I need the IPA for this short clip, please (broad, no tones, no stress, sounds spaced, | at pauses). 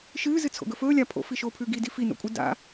ʃ ɨː z ɨ t͡sʰ o̰ ɡ ɵ f ɵː lʲ a pʰ o̰ f i ʃ oː pʰ ʉː ɡ i d i f i n o̰ kʷʼ ɨ d a̰